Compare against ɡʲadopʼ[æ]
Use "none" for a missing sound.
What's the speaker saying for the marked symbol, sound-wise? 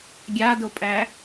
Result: æ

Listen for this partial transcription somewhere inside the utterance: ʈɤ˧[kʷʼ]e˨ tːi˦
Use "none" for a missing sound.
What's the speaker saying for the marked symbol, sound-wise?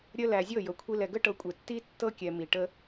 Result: kʷʼ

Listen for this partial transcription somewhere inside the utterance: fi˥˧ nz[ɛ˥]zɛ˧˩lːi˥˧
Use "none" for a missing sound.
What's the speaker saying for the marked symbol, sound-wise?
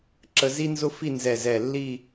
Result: ɛ˧˩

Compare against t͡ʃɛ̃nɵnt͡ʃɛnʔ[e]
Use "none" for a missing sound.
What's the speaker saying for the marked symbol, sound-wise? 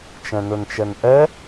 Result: ɛ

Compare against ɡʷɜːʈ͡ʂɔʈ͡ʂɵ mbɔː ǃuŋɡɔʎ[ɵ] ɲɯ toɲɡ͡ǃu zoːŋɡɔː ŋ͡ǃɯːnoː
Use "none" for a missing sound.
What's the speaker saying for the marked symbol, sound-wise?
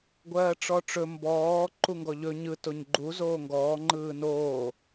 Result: ɵ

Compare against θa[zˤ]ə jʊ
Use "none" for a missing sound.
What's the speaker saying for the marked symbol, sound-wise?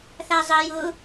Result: zˤ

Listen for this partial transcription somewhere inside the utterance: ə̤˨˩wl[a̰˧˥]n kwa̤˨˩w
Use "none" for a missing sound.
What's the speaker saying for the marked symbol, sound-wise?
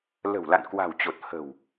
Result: a̰˧˨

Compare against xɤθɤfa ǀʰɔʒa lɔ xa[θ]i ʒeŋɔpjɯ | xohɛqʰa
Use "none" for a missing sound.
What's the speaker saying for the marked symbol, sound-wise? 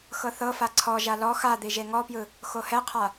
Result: d̪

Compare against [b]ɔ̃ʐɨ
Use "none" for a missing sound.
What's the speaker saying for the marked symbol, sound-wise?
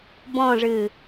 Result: b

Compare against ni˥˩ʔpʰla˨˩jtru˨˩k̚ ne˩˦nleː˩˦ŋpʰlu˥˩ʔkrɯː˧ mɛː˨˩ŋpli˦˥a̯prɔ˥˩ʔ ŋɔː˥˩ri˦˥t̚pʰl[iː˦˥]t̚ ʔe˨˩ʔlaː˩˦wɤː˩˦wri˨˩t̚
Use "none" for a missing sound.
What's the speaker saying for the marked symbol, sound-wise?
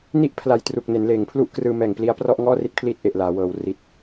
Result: iː˦˥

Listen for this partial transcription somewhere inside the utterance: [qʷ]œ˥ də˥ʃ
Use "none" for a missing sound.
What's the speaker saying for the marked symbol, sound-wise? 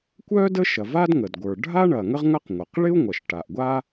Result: kʷ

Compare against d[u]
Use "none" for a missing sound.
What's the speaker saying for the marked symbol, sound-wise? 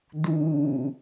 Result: uː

